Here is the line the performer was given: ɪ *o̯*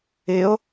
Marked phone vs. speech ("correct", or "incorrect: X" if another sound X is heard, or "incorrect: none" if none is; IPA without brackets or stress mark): correct